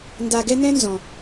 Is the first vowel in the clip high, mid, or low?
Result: low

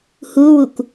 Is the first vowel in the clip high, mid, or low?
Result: high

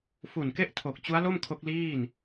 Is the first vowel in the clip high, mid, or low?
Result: high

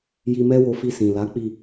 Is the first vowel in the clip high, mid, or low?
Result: high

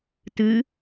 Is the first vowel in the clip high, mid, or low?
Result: high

